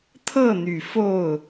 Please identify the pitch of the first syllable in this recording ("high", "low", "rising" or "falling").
falling